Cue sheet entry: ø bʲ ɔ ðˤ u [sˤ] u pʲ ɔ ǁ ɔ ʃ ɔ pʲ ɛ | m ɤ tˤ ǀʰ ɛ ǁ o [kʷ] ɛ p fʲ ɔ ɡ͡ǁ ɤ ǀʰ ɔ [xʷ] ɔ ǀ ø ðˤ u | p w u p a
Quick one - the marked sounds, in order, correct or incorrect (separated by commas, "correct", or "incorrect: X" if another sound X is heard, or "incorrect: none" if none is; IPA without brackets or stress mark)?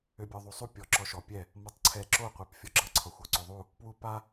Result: correct, incorrect: qʷ, correct